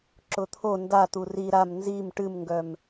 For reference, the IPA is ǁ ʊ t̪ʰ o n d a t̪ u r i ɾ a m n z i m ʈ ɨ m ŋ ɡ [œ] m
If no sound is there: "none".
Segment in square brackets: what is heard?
œ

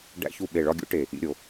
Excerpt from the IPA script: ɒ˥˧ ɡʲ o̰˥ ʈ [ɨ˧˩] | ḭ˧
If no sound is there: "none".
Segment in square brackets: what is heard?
e˧˩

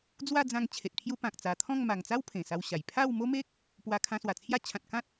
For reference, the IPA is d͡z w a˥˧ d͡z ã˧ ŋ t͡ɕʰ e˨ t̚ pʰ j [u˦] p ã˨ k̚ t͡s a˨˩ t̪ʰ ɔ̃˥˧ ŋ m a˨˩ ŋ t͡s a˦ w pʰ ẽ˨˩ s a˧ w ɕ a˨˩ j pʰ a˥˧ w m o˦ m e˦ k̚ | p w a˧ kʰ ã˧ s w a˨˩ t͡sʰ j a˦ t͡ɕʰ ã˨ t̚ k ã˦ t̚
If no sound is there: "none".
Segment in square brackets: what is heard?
u˦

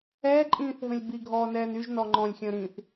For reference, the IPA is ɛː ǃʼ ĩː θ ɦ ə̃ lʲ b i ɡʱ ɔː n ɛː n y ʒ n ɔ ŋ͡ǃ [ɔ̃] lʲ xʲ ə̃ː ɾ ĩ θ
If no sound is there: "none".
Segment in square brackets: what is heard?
ɔ̃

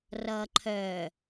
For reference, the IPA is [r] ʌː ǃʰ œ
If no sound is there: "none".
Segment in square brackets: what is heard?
r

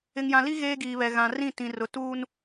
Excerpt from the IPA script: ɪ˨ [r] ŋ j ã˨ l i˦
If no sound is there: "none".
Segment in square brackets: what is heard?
none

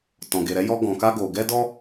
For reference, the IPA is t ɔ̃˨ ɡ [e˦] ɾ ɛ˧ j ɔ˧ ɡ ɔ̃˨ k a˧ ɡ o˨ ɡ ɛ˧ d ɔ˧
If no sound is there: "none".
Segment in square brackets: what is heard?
e˨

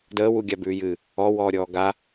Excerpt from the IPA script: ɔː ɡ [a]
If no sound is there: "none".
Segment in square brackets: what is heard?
a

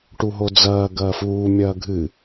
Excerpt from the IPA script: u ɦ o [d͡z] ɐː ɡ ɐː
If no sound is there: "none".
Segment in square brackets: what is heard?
d͡z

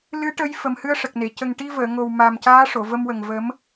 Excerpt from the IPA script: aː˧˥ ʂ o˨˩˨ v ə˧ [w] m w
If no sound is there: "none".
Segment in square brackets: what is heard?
none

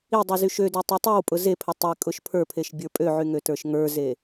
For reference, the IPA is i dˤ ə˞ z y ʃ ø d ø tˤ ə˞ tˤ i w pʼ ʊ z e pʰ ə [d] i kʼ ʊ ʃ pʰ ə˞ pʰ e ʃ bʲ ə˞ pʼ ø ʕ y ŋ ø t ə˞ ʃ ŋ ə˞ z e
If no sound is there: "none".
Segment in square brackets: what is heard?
tˤ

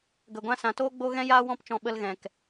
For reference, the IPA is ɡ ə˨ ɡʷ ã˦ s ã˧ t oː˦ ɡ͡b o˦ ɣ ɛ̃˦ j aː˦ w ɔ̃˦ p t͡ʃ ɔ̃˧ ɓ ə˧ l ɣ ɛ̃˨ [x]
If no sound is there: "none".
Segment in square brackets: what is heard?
k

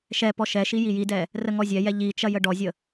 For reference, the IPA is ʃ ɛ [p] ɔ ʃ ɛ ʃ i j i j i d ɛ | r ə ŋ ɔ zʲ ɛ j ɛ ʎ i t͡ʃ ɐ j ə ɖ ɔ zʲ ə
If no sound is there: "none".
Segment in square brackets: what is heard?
p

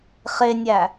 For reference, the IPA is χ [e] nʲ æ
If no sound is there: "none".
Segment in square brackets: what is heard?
e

